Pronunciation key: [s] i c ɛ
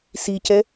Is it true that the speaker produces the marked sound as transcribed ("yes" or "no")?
yes